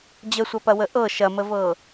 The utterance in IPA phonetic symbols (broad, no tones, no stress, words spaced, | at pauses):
d͡ʑəsʷɐpɐwə ʔɤ ʃɐməvɤː